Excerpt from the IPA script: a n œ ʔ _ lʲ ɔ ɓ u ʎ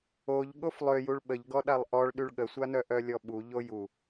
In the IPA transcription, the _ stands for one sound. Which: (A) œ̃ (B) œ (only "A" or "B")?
B